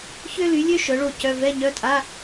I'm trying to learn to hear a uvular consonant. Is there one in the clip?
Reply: no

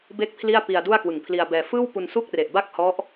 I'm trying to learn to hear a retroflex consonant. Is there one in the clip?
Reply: no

